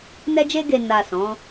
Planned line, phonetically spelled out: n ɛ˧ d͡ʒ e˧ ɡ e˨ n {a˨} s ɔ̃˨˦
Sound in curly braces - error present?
no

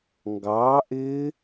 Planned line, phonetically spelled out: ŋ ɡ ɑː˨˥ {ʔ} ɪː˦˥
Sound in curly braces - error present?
no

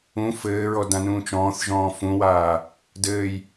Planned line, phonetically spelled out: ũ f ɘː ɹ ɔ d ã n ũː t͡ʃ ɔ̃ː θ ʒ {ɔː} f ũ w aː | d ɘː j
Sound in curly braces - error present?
yes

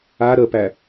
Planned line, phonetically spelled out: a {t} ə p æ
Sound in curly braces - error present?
yes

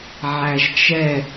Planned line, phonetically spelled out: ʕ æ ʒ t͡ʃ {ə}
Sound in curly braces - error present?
yes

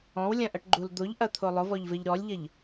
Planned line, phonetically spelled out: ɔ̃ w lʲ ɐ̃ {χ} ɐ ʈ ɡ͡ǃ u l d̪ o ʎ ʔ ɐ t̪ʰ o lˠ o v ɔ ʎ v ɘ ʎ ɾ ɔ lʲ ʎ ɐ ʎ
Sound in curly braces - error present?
yes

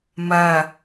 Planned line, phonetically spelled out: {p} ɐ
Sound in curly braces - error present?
yes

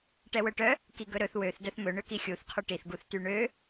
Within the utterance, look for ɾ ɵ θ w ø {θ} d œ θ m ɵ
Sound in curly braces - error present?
no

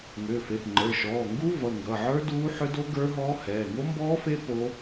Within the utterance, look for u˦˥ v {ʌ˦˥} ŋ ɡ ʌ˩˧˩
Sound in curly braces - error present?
yes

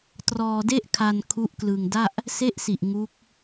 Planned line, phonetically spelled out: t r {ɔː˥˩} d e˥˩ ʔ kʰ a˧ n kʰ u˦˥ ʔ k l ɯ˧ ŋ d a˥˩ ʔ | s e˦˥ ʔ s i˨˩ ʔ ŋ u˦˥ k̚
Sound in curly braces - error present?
yes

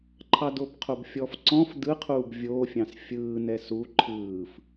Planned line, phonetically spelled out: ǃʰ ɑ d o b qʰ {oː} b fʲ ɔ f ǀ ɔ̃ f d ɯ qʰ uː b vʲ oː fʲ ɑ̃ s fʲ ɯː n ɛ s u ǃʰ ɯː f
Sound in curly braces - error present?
yes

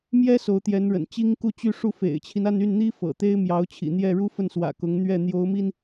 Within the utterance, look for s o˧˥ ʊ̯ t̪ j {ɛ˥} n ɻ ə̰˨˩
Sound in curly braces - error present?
yes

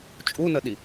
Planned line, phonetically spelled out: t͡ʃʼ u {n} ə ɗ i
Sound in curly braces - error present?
no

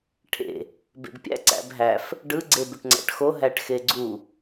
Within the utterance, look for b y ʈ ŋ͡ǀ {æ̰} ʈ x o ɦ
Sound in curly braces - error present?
no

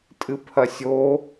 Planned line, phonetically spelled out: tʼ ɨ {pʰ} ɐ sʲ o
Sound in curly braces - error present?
no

